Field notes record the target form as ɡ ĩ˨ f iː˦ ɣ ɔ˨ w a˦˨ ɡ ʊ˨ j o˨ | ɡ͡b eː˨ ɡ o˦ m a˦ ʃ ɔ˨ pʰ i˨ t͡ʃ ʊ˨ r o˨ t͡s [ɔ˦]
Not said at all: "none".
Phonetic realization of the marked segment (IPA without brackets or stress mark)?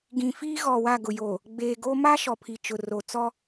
ɔ˦